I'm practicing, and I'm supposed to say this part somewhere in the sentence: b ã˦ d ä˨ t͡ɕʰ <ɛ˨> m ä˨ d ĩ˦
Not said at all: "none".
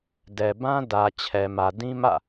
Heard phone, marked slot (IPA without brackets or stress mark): ɛ˨